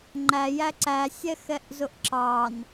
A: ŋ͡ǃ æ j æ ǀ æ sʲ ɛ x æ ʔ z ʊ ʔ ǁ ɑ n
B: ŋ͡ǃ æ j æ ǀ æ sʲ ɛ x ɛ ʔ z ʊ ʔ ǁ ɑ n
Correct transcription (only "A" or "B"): B